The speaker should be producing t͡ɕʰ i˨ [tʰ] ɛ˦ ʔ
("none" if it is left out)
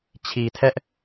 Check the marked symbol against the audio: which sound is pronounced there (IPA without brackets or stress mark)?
tʰ